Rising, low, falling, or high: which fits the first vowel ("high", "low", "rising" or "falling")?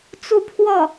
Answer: falling